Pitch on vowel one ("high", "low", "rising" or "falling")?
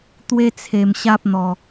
high